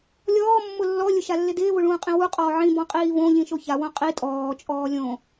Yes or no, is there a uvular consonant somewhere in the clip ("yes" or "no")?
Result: yes